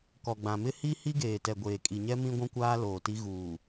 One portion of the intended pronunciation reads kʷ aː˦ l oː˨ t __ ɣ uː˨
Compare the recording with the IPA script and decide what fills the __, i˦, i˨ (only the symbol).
i˦